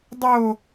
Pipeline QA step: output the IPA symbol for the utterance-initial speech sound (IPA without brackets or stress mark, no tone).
dˤ